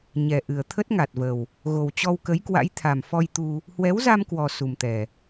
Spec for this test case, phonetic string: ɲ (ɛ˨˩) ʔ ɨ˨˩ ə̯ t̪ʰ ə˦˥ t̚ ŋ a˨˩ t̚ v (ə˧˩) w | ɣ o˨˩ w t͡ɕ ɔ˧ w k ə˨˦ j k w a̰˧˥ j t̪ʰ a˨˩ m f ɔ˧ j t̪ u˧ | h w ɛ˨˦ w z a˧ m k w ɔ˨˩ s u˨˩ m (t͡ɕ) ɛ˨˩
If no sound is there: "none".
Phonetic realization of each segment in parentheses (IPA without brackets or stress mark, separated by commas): ɛ˨˩, ə˨˩, t̪